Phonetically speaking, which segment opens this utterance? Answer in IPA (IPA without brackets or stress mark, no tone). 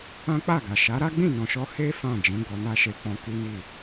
ã